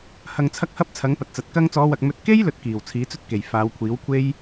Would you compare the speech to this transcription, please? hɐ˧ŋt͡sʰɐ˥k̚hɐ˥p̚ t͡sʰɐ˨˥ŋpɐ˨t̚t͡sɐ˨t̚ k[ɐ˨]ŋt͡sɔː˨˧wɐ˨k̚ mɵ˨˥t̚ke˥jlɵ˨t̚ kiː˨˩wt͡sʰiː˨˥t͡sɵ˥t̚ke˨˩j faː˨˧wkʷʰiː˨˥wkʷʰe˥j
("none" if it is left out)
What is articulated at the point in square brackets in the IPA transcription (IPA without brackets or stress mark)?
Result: ɐ˧